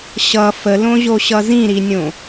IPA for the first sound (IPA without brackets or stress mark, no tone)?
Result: ɕ